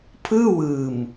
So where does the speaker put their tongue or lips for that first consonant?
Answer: lips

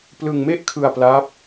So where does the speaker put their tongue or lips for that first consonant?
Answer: lips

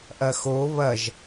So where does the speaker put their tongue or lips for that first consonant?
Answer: throat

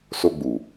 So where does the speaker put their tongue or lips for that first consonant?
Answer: tongue tip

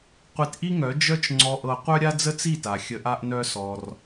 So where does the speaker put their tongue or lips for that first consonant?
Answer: uvula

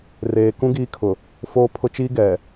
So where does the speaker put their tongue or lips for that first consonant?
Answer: tongue tip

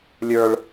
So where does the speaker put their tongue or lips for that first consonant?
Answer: tongue tip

